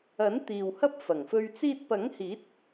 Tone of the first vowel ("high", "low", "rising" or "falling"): rising